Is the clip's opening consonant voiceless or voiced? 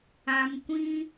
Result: voiced